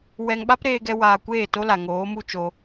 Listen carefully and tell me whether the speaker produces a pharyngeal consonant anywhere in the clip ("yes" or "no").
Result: no